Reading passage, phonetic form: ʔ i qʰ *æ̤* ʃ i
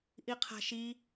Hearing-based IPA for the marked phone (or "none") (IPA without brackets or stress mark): a̤